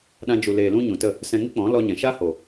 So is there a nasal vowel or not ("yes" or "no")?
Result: yes